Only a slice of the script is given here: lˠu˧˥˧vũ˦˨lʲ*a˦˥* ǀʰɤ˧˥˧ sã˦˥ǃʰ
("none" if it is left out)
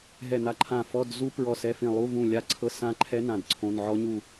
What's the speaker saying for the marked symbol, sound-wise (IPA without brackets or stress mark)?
a˦˥